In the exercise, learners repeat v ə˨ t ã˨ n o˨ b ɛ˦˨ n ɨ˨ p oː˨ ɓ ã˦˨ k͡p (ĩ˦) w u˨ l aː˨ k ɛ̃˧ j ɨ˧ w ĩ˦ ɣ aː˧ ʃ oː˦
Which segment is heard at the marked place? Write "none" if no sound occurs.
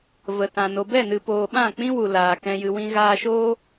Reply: ĩ˦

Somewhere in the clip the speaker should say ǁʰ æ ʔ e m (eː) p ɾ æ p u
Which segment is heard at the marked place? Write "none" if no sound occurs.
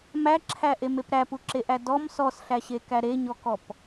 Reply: e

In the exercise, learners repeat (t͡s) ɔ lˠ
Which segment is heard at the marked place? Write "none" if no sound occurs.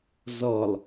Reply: z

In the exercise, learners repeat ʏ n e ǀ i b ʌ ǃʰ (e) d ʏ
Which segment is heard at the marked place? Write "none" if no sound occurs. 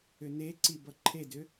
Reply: e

